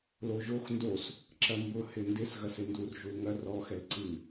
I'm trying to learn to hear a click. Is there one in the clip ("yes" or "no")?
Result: yes